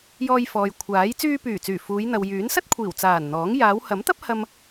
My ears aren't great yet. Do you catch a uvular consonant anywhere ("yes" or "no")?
no